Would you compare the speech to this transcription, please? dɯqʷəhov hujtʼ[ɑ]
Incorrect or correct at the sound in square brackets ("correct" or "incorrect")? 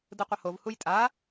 incorrect